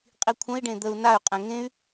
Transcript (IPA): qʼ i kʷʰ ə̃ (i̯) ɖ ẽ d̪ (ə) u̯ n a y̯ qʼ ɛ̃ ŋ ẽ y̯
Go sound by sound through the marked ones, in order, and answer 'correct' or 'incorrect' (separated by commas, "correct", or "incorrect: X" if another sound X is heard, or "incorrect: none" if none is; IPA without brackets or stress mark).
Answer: correct, correct